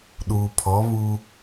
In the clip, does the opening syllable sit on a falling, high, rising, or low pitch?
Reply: low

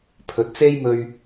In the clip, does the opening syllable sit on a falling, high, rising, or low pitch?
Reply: low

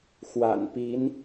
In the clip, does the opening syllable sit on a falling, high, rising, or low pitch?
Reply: low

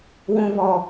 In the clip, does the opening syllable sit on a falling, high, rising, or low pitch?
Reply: high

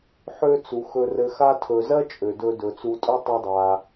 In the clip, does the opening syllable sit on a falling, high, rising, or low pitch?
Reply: high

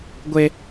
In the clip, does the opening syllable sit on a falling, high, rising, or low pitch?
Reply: high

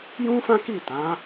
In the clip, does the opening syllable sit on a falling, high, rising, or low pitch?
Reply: high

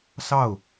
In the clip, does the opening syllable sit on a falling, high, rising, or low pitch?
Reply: falling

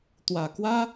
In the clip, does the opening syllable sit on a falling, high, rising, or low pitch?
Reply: low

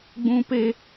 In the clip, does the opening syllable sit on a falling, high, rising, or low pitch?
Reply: high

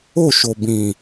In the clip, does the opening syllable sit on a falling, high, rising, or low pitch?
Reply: falling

